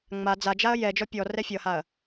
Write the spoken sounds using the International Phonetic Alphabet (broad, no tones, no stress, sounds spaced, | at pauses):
ŋ͡m a d͡z a d͡ʒ a ɐ̯ j ɛ d͡ʒ ɔ pʲ ɔ r ɛ fʲ ʌ h a ɐ̯